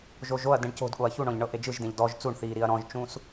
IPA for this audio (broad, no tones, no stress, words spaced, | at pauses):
ʒoʒoɐ̯ dẽɳco̤d ɠoɐ̯çuɳɔ̃ʎɳɤ ʔed͡ʒɯʒdẽʎ dɔʒ t͡suɳθiː ɾiɐ̯ɾɔ̃ʒt͡ʃũs